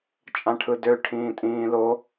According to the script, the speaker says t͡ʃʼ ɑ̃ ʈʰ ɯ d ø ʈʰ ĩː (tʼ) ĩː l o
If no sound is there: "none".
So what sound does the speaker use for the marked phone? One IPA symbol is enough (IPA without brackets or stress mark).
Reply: tʼ